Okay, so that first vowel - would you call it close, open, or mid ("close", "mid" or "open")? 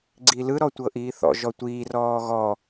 close